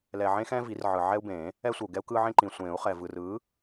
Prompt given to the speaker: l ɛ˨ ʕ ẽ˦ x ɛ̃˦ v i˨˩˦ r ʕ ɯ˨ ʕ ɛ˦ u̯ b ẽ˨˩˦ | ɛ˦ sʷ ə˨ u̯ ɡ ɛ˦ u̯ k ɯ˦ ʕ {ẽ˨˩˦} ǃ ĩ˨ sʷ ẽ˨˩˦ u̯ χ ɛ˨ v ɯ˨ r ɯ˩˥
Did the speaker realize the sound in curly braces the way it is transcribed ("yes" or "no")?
no